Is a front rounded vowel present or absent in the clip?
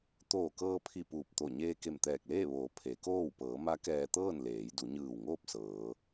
absent